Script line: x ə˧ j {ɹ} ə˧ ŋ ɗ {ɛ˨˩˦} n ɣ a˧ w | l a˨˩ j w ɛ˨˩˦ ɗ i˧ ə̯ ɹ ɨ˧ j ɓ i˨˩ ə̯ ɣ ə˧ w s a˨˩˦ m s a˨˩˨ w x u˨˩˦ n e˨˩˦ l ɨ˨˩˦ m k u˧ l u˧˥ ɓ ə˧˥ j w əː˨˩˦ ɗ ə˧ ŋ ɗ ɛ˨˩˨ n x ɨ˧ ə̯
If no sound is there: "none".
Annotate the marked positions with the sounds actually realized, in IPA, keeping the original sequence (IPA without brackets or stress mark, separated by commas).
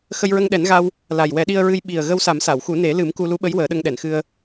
ɹ, ɛ˨˩˦